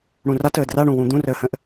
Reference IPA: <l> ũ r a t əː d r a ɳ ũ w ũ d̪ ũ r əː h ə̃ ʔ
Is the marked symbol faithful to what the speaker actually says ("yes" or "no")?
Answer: no